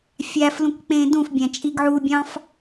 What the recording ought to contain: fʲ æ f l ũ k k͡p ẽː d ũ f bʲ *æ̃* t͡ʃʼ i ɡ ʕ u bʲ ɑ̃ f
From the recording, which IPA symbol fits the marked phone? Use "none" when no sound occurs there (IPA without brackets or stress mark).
æ̃